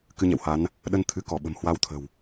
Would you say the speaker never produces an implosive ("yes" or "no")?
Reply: no